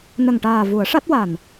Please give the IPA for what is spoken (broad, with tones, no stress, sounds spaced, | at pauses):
n ə˨˩ ŋ ʈ aː˨˩ v u˨˩˦ ə̯ ʂ a˦˥ t̚ w a˨˩ n